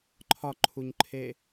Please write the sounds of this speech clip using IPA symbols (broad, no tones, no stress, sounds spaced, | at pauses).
ǃʰ ɒ ǃʰ u ɲ ǃʰ e